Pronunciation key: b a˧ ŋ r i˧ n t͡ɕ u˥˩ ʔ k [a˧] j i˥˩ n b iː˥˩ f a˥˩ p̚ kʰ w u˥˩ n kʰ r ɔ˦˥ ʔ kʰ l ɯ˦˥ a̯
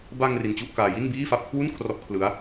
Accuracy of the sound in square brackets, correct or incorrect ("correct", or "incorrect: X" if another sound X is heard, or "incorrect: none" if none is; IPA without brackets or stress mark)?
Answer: incorrect: aː˧